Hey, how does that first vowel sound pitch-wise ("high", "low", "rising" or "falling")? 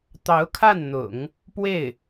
rising